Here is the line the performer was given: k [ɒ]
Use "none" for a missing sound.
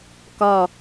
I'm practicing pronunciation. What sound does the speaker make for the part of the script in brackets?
ɒ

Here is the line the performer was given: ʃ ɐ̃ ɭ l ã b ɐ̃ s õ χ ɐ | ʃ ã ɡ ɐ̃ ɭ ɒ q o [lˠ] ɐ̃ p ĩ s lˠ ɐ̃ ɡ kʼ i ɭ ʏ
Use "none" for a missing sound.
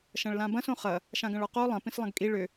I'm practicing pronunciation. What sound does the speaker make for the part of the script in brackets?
lˠ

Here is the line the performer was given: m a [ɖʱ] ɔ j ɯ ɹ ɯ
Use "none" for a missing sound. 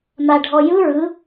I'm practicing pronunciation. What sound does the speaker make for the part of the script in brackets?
ɖʱ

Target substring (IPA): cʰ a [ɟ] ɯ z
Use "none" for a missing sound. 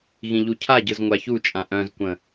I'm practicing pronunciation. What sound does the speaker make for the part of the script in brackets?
ɟ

